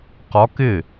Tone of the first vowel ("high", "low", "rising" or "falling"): rising